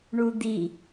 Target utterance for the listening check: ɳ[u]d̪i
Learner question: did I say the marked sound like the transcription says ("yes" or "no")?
yes